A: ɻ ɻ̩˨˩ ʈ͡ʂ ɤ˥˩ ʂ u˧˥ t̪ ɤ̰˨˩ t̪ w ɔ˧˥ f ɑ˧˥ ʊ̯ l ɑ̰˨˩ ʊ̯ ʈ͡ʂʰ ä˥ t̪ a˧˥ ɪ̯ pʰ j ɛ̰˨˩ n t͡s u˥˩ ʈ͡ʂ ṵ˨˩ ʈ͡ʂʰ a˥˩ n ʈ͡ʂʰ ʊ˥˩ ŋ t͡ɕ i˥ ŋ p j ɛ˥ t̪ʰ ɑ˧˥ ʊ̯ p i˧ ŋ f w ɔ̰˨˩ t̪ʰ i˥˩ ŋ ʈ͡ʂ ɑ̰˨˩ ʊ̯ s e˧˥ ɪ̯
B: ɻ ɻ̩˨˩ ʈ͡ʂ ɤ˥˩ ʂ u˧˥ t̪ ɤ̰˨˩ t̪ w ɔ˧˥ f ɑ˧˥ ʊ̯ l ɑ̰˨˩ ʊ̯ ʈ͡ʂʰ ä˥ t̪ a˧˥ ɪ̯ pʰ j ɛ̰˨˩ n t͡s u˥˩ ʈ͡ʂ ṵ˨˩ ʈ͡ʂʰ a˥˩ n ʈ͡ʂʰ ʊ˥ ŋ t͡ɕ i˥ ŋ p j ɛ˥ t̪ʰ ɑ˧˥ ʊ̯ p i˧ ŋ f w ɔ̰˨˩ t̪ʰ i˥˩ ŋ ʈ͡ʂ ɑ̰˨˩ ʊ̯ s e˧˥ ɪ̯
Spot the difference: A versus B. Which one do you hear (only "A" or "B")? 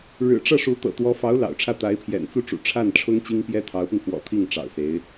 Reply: B